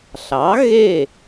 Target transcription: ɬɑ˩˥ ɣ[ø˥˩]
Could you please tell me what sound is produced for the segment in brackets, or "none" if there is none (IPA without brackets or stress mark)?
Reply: e˥˩